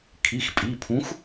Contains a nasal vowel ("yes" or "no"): yes